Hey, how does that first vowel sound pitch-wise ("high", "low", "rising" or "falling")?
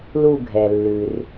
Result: falling